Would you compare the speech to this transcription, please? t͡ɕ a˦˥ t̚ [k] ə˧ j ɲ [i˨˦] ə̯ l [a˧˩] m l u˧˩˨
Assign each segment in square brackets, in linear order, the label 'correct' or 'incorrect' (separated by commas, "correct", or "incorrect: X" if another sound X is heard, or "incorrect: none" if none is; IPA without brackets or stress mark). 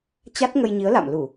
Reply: incorrect: ŋ, correct, incorrect: a̰˧˨